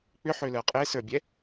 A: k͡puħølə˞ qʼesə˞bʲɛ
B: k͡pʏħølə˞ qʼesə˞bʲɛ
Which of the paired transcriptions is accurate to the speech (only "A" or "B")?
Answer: B